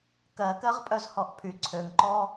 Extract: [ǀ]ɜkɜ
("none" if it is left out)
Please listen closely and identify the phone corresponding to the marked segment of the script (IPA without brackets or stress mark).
k